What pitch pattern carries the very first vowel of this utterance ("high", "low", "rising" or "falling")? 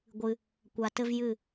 low